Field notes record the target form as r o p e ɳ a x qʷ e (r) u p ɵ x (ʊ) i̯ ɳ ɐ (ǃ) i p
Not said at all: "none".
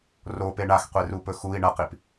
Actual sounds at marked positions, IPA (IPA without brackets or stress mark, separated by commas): r, u, q